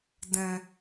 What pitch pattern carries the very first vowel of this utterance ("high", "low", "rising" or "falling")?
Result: low